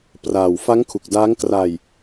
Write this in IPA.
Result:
p r aː˨˩ w f a˦˥ ŋ kʰ u˨˩ k̚ d aː˦˥ ŋ k r a˧ j

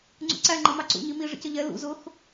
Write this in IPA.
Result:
ŋ͡ǀ ṵ ǀ æ ŋ͡ǃ ʌ m ɑ ǀ ṵ ɲ i m i ʐ ə̰ c ə ʎ ɛ l ṵ z ʊ x

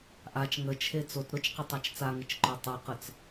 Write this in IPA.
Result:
ʔ a t͡ʃ ŋ ə t͡ʃʰ e t͡s o t ɾ ʊ t͡ʃ q ɪ tˤ a t͡ʃ t͡s a ŋ ɪ t͡ʃ ǃ œ tˤ o q ə t͡s

